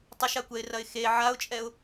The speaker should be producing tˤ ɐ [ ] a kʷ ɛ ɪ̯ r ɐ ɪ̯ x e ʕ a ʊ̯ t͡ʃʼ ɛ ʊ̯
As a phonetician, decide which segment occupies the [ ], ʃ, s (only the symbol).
ʃ